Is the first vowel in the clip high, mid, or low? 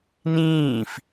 high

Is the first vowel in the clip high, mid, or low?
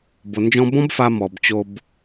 mid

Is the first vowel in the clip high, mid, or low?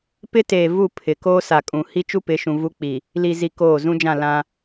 high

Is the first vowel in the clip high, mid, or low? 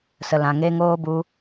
mid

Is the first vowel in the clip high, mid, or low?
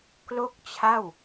mid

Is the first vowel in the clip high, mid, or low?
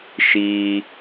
high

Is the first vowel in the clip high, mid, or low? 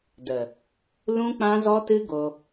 mid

